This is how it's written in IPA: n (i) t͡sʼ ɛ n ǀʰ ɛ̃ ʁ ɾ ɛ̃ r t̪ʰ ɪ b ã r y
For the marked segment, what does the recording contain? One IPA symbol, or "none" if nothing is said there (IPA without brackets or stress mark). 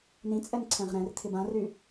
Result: ĩ